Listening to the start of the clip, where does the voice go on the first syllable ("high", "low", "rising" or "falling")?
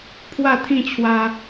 falling